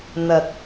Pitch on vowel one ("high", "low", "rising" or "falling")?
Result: low